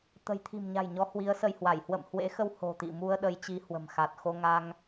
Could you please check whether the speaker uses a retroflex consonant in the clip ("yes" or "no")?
no